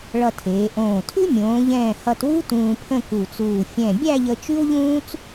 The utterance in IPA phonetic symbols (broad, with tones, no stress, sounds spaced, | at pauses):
ɭ ʌ˧ tʰ eː˩˧ ʔ õː˧˩ tʰ ʉ˥ mʲ õː˩˧ ʎ ɛ̃ː˧˩ h ʌ˧ t w u˥ t ũː˧ pʰ ə̃˥˧ k u˧˩ t͡s uː˧˩ fʲ ɛ̃˧˩ bʲ æ˥˧ ʎ ə˧ t͡ʃ ʉ˥ w ʎ ũː˥ t͡s